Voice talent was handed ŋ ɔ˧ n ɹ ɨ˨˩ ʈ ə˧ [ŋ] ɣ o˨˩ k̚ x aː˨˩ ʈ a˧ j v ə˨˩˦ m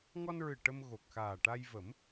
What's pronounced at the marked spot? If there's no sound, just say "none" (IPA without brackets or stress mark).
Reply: m